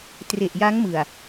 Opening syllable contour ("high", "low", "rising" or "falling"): low